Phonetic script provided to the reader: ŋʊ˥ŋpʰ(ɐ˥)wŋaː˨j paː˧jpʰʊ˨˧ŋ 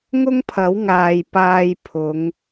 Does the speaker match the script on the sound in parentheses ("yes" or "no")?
no